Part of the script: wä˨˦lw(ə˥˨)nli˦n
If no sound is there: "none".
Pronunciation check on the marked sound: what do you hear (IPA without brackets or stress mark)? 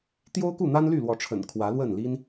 ə˥˨